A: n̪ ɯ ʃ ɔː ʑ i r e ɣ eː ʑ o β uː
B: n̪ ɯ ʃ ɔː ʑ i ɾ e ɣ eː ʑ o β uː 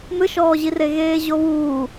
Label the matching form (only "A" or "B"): A